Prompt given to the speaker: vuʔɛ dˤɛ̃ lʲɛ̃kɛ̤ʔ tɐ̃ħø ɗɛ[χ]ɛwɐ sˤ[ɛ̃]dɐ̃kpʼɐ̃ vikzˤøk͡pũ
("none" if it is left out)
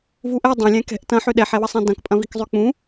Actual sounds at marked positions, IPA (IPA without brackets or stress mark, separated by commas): ħ, ɛ̃